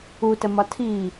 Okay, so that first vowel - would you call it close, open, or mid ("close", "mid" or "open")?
close